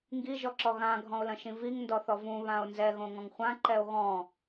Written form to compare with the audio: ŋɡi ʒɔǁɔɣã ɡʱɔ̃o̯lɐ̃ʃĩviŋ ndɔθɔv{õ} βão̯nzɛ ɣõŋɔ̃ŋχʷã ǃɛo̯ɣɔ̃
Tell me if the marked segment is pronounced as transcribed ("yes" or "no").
no